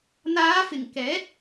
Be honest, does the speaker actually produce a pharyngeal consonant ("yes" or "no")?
no